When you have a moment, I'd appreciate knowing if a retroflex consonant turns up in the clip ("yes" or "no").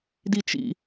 no